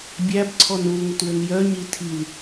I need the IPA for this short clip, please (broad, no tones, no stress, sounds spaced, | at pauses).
bʲ æ b ǀʰ ɔ n u l ŋ ə t w ɘ n j œ ɲ i tʰ i l